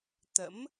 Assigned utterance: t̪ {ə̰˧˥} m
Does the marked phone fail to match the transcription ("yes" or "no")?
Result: no